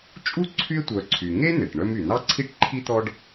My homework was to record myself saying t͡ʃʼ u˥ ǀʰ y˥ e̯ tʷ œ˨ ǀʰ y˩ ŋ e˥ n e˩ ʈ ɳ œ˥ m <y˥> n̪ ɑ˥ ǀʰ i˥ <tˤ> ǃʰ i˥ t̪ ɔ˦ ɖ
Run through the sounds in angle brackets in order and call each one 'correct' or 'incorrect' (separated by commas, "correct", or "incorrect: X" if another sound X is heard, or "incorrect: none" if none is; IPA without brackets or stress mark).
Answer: incorrect: y˩, incorrect: ʈ